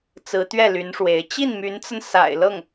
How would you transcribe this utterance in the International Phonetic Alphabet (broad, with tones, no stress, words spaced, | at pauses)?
t͡sɹ̩˧˥t̪ɥɛ˥˩ly˧˥nʂwe˧˥ɪ̯ t͡ɕi˥˩nmy˧˥nt͡sə˧n sa̰˨˩ɪ̯ lɤ˥˩ŋ